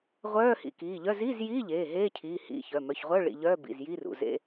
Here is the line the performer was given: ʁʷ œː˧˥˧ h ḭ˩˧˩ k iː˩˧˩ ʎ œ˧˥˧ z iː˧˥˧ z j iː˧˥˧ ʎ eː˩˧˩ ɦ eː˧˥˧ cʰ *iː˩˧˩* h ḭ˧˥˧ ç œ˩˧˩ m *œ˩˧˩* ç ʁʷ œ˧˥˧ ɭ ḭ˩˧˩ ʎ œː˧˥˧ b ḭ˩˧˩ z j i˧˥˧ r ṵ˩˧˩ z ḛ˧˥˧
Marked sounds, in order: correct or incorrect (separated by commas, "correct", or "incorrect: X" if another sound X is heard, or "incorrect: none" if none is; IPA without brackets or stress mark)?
correct, correct